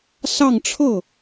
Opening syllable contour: falling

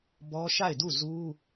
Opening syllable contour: high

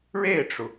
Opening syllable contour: falling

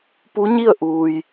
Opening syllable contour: rising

